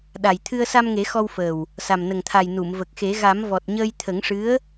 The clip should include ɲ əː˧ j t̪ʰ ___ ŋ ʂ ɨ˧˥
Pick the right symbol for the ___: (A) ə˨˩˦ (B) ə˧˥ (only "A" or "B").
A